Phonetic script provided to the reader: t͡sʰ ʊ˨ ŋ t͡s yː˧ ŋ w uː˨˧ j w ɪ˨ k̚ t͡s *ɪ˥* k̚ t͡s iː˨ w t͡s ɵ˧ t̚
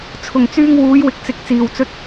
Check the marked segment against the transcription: incorrect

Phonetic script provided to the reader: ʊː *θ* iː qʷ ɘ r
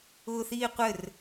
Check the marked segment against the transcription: correct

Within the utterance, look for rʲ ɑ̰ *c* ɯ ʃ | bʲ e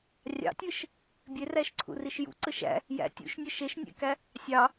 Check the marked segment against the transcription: incorrect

